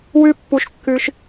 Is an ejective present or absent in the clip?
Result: absent